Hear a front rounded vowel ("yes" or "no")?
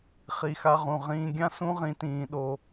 no